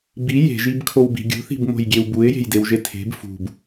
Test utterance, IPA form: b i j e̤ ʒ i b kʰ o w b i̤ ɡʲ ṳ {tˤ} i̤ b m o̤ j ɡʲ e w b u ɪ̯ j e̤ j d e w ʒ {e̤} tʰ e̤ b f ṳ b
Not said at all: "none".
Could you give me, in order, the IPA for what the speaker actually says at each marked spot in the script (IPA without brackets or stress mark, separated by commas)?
θ, e